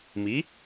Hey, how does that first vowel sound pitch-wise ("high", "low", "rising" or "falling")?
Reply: rising